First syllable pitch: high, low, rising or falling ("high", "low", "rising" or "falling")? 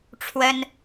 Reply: high